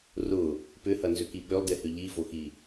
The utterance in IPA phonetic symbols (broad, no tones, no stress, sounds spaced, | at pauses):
r ʊ | p ʏ h ɐ n z ʏ k i ɓ ø lˠ d e h ʏ ʎ i v o x i